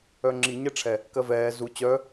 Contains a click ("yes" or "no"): yes